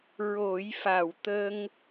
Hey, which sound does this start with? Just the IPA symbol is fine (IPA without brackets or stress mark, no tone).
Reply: ɹ